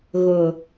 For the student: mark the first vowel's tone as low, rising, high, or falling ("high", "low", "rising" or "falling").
low